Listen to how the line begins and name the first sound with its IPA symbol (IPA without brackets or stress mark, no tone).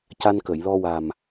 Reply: c